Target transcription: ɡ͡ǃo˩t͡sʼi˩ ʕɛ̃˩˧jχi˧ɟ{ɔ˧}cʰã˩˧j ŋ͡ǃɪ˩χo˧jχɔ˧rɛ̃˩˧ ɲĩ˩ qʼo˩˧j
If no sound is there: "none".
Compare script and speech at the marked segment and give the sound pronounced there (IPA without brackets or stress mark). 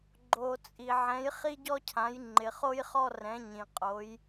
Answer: ɔ˧